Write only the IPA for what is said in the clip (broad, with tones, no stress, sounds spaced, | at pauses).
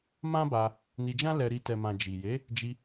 m ã˦ b a˧ | n i˧ d͡ʒ ã˦ l ɛ˧ ɾ i˧ t ɛ˨ m ã˨ d͡ʒ i˨ j e˨˦ | d͡ʒ i˧